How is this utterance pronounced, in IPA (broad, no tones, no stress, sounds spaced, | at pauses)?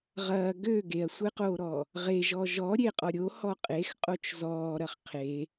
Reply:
ʁ ɐː ɡ ø ɡ e ɐ̯ sʷ e q oː ɾ ɔː | ʁ e ʒ ɔ ʒ ɔ ɾʲ e qʼ ɔ ɾʲ o h ɔ qʼ e x qʼ o t͡ʃ z ɔː ɾ ɐ χ qʰ e